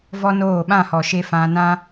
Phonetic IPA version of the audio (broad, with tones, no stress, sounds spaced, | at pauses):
v ɔ˦ n oː˦˨ ɓ ã˦˨ h ɔ˨ ʃ e˧ f ã˧ n ã˦